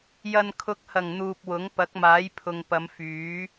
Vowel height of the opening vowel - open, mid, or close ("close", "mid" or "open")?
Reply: open